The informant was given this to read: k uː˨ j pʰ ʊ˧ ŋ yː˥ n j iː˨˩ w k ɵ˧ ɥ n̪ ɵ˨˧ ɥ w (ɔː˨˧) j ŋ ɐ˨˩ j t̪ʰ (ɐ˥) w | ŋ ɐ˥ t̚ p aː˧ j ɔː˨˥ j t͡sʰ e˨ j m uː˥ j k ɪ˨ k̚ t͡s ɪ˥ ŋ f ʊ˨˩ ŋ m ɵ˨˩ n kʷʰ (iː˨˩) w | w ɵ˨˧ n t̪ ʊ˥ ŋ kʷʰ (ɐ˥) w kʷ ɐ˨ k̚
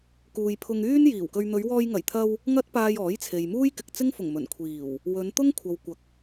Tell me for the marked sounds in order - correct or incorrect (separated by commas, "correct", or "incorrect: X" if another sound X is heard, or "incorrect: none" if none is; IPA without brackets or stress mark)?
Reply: incorrect: ɔː˧, incorrect: ɐ˧, correct, incorrect: ɐ˨